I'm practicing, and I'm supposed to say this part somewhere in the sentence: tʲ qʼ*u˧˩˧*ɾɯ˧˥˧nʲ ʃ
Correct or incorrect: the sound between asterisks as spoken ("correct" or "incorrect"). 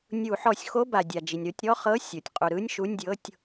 correct